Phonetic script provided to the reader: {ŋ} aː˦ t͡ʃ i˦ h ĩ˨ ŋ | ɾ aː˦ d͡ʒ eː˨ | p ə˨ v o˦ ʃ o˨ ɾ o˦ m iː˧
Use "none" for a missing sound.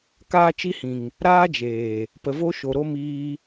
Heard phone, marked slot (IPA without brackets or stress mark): k